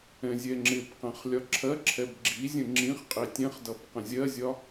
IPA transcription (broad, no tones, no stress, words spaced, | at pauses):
ɛ̃zʲɛŋ͡ǁɪbqɛ̃χ lʲɒǁʰɜǁʰɛb ɡ͡ǁizʲə̃ ŋ͡ǁĩχ qʼitʲɛ̃χdʌb qə̃zʲɜzʲɒ